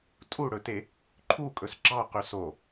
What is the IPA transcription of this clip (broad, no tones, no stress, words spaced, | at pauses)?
tʼuɽɵte | ǃʰukʼɵs ɡ͡ǁɑqy so